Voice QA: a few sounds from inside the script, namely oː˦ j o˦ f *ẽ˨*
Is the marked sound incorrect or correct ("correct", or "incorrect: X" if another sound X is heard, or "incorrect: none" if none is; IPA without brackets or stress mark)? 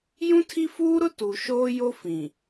incorrect: ĩ˨